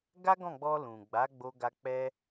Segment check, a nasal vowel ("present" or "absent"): present